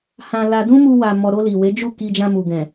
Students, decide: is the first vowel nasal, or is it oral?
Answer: nasal